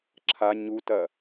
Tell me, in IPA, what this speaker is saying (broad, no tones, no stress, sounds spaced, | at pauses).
ǁʰ a ɲ u t ɐ